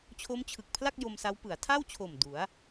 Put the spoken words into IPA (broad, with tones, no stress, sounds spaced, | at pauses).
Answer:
t͡ɕʰ o˦˥ m t͡ɕʰ ɯ˨˩ k̚ pʰ l a˥˩ k̚ j o˧ m s a˦˥ w p ɯ˩˦ a̯ tʰ a˥˩ w t͡ɕʰ o˨˩ m d u˩˦ a̯